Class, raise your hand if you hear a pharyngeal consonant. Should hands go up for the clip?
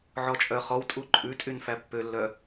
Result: yes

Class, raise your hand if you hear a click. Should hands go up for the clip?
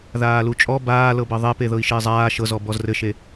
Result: no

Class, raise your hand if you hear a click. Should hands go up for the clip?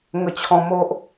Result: no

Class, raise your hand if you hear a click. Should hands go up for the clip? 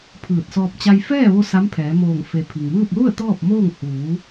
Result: no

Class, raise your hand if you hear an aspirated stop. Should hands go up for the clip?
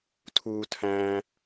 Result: yes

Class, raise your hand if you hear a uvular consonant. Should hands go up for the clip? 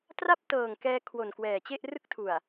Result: no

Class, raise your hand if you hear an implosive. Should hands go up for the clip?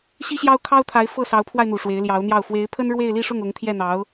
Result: no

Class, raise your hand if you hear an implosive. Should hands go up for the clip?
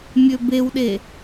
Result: yes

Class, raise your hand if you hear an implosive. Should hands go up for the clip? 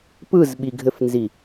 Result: yes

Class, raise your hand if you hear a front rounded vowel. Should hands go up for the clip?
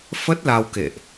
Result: no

